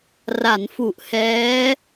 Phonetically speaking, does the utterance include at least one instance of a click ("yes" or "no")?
no